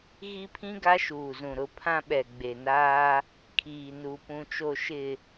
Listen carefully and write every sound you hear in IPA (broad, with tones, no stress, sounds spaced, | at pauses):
ɣ i˦ pʰ ĩ˦ ɡ a˦ ʃ uː˨ z ũ˨ ɾ ʊ˦˨ pʰ ã˦ ɓ ɛ˨ ɡ͡b e˨ n aː˦ | kʰ iː˨ n u˨ p ũ˨ t͡ʃ o˨ ʃ ɪ˨